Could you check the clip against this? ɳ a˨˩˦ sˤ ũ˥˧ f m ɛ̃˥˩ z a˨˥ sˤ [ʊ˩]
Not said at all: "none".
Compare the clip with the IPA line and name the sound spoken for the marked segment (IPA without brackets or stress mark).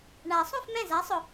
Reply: ʊ˩